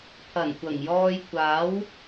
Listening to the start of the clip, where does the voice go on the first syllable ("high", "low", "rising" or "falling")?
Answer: low